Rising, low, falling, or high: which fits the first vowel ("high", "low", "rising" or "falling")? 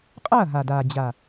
falling